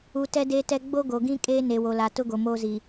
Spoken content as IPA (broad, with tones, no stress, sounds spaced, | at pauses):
u˨ t ɛ˦ d eː˦ t ɛ˦ ɡ͡b o˦ ɡ o˨ ɡ ĩ˦ kʼ eː˦ n e˨ w o˨ l a˨ t ʊ˦ ɡ o˨ m oː˦ z i˨